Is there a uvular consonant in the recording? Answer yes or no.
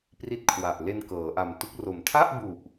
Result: no